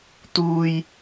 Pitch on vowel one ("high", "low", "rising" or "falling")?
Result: high